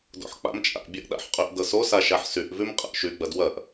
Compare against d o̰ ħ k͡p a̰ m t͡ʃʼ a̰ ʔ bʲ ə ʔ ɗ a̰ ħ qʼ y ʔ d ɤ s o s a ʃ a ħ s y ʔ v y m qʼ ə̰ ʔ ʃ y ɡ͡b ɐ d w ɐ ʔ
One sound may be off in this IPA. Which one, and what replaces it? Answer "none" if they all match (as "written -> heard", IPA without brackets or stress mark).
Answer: none